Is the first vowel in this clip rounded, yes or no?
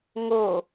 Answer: yes